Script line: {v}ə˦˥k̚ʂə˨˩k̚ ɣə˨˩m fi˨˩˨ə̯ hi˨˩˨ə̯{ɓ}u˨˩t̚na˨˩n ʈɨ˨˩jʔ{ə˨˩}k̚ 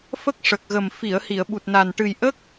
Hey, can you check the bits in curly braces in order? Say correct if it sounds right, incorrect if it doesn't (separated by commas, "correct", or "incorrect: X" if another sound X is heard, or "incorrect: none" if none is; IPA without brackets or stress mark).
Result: incorrect: f, correct, incorrect: ə˦˥